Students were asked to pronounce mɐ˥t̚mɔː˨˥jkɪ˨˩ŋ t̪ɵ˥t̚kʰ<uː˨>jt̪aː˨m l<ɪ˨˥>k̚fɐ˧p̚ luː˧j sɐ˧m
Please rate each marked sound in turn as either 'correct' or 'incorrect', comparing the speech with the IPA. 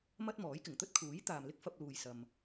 incorrect: uː˨˥, incorrect: ɪ˥

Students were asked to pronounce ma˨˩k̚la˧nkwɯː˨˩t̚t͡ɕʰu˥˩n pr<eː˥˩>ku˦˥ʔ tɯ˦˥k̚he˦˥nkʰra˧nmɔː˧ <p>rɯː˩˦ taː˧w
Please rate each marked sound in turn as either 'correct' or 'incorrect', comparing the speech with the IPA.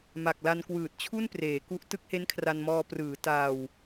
incorrect: eː˩˦, correct

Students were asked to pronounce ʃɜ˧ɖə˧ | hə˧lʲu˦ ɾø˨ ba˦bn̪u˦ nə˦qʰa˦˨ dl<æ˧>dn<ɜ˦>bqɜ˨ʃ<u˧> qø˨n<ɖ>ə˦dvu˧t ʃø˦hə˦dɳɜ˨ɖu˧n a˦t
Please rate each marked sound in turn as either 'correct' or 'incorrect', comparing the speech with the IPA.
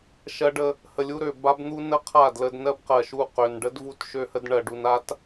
incorrect: ə˧, correct, incorrect: u˦˨, correct

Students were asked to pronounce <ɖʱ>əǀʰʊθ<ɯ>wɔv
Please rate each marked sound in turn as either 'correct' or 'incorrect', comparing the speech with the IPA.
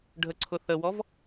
correct, incorrect: ə

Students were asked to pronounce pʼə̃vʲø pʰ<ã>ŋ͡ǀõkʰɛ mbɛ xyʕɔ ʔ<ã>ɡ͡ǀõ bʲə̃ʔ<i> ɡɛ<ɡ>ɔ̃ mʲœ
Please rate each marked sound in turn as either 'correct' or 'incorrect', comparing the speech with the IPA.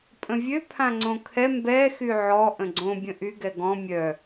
correct, incorrect: ə̃, incorrect: y, correct

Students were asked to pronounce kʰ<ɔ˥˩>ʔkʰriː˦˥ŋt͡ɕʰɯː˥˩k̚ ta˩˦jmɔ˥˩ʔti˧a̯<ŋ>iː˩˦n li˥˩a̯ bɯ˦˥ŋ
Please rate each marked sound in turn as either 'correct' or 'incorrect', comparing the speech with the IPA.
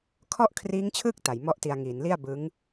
correct, correct

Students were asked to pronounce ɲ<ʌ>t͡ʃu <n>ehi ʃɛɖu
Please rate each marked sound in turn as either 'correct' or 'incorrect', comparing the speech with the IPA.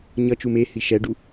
correct, incorrect: m

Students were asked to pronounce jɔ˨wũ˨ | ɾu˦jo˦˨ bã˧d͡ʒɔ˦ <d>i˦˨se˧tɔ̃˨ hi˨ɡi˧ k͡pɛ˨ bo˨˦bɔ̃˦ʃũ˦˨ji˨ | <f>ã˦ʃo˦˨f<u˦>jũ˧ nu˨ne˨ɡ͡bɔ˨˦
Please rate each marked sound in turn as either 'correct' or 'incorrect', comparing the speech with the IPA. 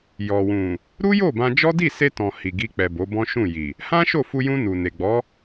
correct, incorrect: h, incorrect: u˧

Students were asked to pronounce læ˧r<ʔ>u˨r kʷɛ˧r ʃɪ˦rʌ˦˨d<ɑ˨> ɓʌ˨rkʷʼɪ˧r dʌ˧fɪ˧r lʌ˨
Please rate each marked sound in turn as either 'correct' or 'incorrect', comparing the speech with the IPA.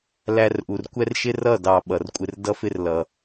correct, correct

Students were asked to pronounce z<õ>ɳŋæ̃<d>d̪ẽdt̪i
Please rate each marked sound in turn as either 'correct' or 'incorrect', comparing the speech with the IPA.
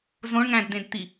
correct, correct

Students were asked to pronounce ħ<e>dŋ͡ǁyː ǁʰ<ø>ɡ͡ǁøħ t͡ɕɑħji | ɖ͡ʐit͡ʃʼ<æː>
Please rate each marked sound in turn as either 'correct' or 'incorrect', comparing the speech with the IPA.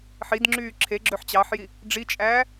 incorrect: i, incorrect: e, correct

